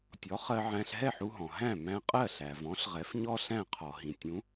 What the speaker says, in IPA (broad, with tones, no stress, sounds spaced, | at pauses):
tʲ ɔ˩˥ χ ɜ˧ ʕ æ̃˧ ɬ ɦ ɛ˥˩ ħ u˧ ɦ ɔ̃˩ ɦ æ̃˥˩ m æ̃˧ qʼ ɜ˥˩ ɬ æ˩ v ɔ̃˩˥ ɬ ʁ ɛ˩˥ f ɲ ɔ˥ ɬ æ̃˥˩ qʰ ɔ˩ ɦ ĩ˩ tʲ ũ˩˥